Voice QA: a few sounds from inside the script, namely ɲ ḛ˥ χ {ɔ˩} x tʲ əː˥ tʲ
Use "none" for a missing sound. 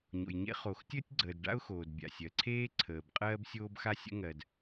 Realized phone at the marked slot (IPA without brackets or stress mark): o˩